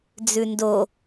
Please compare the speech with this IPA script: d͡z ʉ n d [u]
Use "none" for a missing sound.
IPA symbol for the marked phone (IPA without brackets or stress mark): o